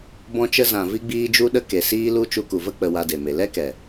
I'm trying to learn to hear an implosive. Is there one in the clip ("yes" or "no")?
yes